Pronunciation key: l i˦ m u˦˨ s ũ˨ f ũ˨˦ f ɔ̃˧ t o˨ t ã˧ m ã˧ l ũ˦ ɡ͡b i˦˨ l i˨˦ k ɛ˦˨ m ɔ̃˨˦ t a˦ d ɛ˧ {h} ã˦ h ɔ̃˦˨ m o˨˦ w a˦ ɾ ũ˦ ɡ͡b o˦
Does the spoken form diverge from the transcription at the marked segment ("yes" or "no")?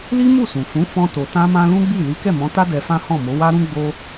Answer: yes